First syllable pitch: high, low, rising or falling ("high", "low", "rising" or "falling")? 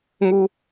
high